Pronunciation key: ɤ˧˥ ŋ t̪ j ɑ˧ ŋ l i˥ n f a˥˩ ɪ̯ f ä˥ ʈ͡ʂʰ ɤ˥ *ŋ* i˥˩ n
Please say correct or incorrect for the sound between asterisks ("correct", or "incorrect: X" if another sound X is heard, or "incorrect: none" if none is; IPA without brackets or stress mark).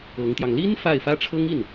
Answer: correct